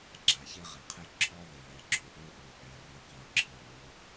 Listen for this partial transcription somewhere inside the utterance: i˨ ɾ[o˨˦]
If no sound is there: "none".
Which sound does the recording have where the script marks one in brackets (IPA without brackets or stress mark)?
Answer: o˨˦